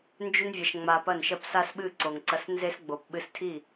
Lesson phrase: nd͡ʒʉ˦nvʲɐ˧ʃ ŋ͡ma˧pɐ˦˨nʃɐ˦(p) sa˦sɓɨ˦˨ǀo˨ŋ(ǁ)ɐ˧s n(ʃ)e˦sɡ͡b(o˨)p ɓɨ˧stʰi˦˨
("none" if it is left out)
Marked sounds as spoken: p, ǀ, z, o˨

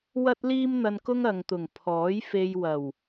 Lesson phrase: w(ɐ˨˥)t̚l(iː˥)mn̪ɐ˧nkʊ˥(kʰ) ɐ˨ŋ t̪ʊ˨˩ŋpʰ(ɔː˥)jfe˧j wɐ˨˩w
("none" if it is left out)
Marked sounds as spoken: ɐ˥, iː˥, ŋ, ɔː˨˥

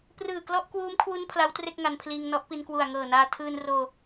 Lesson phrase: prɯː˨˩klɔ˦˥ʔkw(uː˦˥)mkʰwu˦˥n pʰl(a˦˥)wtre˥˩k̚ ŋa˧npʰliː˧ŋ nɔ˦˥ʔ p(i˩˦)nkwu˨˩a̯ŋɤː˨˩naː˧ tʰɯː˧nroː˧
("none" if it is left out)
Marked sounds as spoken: uː˦˥, a˦˥, i˧

